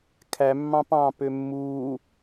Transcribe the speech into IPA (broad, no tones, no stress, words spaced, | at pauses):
kʰæmːɑ̃p ɑ̃ːpømːuː